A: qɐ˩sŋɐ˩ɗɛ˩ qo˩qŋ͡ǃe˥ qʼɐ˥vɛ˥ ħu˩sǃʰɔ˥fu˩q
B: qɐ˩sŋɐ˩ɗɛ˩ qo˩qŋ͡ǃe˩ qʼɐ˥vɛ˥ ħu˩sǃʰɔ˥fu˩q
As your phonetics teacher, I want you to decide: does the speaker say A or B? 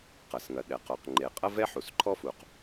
B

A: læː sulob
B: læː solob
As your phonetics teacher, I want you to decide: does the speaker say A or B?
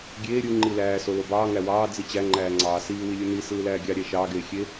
B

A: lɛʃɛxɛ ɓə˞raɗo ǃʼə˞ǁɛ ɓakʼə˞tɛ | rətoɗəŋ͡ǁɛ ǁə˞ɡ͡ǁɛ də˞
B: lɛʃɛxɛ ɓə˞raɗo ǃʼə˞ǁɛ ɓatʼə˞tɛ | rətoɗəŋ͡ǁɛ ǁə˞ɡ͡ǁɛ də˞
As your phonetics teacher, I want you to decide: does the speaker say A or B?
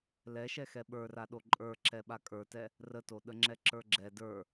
A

